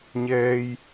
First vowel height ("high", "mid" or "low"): mid